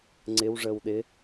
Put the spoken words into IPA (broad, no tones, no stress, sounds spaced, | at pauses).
ŋ͡ǀ ɪ w ʐ əː w ɗ ɪ